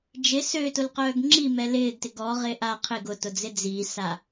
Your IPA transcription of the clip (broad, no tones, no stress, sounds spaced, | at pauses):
d͡ʒ ɪ s ø t ʊ l q œː ɡ ŋ͡ǁ i m ɛ l ɪː ɡ t ɪ ɡ ɔ ʁ ɪː ʔ a qʰ ɪ ɡ ʊ t ʊ d͡z ɪ d͡z i s a